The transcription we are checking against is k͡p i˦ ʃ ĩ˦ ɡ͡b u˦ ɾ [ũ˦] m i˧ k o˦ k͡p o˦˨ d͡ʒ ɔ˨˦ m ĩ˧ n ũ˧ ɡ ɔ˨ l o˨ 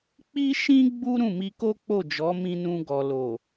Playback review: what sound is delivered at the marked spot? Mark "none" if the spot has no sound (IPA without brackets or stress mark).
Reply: ũ˦˨